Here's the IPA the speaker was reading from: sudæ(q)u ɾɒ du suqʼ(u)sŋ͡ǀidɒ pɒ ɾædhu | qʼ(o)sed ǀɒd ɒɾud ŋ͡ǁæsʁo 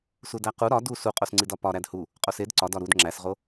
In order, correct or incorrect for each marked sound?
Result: correct, incorrect: o, correct

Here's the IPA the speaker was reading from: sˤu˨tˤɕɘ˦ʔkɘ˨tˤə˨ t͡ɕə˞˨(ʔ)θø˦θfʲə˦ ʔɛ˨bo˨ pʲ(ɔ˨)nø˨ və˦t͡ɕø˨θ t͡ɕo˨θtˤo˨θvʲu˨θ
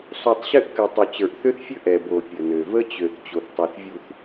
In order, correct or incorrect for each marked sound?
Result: correct, incorrect: ə˨

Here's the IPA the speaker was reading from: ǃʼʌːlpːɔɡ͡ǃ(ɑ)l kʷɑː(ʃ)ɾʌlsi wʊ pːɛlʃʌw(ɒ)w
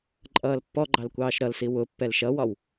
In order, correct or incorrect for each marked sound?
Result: correct, correct, correct

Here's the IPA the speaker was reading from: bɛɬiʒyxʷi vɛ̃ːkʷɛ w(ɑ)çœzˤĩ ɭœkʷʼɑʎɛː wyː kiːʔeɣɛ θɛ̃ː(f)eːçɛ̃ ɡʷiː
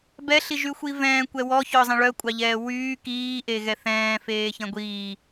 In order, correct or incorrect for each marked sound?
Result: incorrect: ɔ, correct

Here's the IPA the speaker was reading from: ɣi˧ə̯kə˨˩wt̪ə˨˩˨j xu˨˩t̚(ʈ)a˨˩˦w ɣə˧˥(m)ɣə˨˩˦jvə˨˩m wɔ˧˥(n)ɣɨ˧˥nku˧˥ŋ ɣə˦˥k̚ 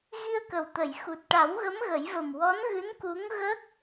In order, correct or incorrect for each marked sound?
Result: correct, correct, correct

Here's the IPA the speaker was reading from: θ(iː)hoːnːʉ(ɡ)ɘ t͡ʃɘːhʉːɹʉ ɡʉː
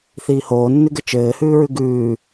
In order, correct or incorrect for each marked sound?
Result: correct, correct

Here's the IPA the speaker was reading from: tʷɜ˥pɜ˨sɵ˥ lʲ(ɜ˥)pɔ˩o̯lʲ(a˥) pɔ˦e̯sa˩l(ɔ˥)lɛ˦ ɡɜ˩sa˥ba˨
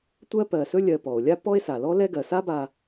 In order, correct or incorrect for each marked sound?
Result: incorrect: ɜ˨, correct, correct

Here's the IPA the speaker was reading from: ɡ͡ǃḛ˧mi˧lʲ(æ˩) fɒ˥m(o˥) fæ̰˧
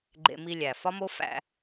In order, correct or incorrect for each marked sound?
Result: correct, correct

